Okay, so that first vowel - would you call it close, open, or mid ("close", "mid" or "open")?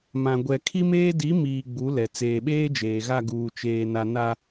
open